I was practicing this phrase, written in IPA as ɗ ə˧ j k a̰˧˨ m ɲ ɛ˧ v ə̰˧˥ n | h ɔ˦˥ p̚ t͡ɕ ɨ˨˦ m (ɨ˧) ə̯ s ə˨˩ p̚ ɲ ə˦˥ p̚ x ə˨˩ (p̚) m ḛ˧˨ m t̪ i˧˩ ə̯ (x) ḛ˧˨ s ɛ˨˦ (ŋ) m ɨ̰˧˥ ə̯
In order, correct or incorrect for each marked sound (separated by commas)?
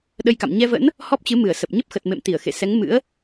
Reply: incorrect, incorrect, correct, correct